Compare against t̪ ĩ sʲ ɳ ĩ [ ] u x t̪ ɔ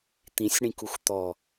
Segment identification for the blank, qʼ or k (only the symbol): k